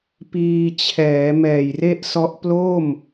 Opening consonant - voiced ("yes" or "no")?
no